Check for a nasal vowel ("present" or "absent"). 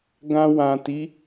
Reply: present